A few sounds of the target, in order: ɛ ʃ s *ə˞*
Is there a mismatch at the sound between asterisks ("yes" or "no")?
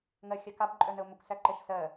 yes